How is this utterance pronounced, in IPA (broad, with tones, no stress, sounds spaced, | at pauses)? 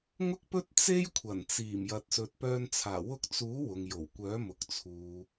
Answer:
ŋ ʊ˥ k̚ p ɵ˥ t̚ t͡s e˥ j kʷʰ ɐ˨˩ n t͡s iː˨˩ m j ɐ˨ t̚ s ɵ˨ t̚ p œː˧ n t͡sʰ aː˨˩ w ʊ˧ k̚ t͡s uː˨˥ w ʊ˨ ŋ j o˨˩ w kʷ œː˨˥ m ʊ˨ k̚ t͡sʰ uː˨